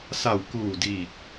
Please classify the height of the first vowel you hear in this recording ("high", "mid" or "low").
low